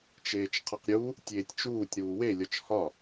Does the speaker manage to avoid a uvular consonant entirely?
no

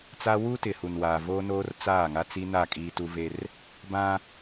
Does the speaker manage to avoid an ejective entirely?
no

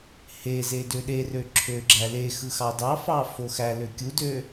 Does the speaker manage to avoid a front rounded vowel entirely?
no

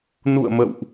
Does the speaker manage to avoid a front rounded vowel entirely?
yes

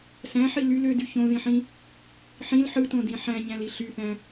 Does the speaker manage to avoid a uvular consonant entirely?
yes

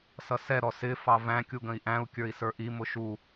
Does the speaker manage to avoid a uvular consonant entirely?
yes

